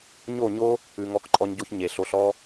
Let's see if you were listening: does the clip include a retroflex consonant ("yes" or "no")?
no